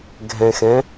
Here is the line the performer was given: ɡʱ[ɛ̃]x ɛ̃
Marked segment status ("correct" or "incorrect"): correct